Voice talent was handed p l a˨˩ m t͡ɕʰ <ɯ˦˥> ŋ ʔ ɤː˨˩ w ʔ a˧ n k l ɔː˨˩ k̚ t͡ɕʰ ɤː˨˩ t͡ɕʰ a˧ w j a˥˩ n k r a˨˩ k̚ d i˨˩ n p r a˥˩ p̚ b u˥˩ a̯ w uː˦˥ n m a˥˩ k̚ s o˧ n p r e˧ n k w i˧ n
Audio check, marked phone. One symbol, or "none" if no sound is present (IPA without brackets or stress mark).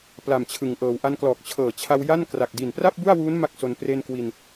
ɯ˨˩